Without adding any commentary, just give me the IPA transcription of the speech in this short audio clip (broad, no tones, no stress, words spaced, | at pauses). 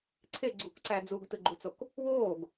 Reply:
ǀʰe ɡ͡ǀukǀæ d͡zuɡtɯɡ͡ǃut͡sok | woːɡ